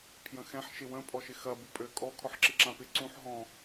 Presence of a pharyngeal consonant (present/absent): present